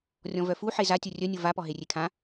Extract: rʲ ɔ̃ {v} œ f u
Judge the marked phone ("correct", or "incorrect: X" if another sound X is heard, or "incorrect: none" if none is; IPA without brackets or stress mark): correct